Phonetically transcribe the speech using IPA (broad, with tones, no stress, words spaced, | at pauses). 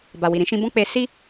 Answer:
ba˨wi˨ɾĩ˧ ʃĩ˧bɔ̃˦k͡pe˧ si˦